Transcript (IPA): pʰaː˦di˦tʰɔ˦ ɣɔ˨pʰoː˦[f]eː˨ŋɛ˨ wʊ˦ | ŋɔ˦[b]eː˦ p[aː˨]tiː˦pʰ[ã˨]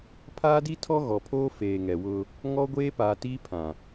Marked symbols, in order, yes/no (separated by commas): yes, no, yes, yes